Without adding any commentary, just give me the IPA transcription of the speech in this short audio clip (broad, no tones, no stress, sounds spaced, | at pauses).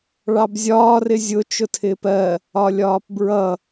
ɭ ɑ b zʲ ɒː r ɪ zʲ ʊ t͡ʃ ʊ tʰ ɪː p ɜ | ɒ lʲ ɒː p b ɹ ʌ